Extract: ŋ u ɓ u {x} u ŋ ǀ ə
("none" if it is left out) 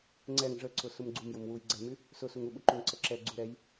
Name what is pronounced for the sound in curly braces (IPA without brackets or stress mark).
ǃ